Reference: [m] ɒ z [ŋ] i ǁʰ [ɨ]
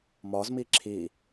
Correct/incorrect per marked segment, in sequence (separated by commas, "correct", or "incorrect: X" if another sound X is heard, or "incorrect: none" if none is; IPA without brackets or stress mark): correct, incorrect: m, incorrect: i